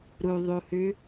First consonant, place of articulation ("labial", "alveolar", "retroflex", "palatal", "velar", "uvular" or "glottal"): alveolar